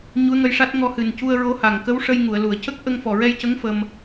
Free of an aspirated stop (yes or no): yes